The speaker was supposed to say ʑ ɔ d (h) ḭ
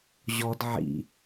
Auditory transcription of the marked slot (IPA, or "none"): ʕ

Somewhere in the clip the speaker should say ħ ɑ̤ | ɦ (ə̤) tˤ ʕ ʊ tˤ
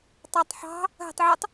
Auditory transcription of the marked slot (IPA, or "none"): ə̤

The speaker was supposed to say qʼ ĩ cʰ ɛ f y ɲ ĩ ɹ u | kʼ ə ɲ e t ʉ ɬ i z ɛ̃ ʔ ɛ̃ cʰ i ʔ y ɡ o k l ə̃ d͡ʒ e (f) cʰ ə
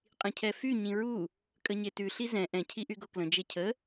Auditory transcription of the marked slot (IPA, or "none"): none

